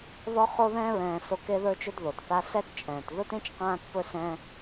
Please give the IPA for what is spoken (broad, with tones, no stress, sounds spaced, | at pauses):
ð ɔ˦ χ o˦ ð ɛ̃ː˦ ɹ ɛ̃ː˧ s o˦˨ k e˦ ð ə˞˦ t͡ʃ ɵ˦ d ð o˨ d θ a˦ s ɛ˦ t t͡ʃʼ ɛ̃ː˨ t ð ɵ˦ t ẽ˦ t͡ʃ q ãː˦ t p ɵ˦ s ɛ̃˦